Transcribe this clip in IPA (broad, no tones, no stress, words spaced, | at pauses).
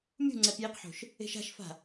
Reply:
mʲṳŋ͡ǀɛp jiqħo̤ʃ | e̤ʃa̤ʃfa̤